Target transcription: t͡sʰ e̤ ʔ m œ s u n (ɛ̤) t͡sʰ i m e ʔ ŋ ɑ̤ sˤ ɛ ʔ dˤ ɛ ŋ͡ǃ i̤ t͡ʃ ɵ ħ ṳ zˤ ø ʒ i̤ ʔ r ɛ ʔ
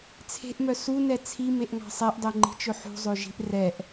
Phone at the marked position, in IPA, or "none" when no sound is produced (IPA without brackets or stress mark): ɛ